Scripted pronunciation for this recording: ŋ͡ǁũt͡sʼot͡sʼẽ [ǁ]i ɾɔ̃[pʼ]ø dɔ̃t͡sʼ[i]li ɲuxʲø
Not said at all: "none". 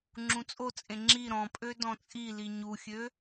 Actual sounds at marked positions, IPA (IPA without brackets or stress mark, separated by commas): ŋ͡ǁ, pʼ, i